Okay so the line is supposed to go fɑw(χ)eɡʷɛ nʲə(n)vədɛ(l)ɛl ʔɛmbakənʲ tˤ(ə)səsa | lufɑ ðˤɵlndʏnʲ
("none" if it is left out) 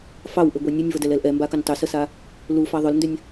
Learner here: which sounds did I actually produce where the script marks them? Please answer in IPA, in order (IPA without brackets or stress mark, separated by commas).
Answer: ʔ, nʲ, l, ʏ